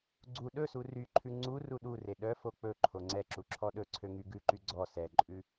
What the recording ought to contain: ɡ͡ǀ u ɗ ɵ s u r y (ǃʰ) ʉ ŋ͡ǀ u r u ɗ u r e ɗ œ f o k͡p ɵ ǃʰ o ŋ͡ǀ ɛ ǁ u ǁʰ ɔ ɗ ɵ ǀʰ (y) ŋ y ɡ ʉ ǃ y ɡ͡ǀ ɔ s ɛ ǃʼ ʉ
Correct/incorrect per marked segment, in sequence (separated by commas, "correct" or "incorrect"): correct, incorrect